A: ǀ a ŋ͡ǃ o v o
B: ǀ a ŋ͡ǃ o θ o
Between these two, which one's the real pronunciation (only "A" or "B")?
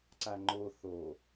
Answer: B